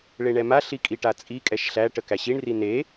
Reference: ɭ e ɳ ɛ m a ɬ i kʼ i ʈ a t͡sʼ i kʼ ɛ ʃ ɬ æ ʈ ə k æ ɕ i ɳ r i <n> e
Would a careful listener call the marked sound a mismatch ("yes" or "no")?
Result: no